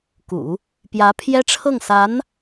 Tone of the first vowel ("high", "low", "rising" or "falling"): low